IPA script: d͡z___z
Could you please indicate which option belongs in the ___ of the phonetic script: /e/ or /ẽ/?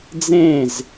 ẽ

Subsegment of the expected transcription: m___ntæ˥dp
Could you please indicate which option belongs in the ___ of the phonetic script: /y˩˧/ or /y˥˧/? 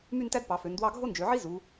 y˥˧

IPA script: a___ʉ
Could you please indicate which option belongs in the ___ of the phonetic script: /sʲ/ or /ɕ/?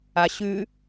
ɕ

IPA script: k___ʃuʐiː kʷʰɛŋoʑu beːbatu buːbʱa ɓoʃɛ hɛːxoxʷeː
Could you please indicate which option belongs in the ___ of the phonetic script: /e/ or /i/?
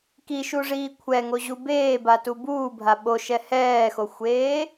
i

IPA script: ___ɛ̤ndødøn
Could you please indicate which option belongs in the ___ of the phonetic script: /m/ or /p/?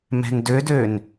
m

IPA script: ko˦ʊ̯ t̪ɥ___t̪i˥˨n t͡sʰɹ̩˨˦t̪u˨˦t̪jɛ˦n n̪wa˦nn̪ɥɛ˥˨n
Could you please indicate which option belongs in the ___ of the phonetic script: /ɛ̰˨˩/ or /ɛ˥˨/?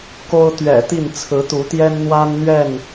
ɛ̰˨˩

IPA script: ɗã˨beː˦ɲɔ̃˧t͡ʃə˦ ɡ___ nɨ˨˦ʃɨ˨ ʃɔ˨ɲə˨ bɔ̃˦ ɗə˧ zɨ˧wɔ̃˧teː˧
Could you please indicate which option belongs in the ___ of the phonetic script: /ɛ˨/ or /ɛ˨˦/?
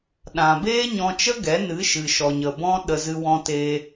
ɛ˨˦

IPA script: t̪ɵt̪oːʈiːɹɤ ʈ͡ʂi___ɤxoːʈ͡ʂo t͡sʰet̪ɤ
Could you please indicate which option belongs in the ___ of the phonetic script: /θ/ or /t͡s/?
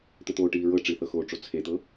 θ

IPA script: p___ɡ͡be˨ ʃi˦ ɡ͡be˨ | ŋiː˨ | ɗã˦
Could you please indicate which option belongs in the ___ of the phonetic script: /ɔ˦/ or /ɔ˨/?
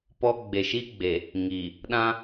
ɔ˦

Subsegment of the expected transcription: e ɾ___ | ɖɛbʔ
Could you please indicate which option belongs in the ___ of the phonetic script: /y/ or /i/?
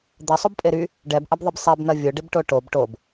y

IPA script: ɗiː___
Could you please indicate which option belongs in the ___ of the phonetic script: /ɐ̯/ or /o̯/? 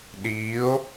o̯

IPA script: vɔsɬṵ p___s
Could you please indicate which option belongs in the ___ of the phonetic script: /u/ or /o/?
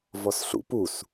u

